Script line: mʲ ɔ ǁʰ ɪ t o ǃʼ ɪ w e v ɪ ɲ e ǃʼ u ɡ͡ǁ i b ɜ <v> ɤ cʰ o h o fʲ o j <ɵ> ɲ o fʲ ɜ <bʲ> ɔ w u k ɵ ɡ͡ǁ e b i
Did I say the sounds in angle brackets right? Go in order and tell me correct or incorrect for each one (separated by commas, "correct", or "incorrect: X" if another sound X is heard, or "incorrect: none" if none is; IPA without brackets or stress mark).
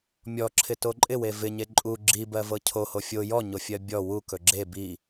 correct, incorrect: ɔ, correct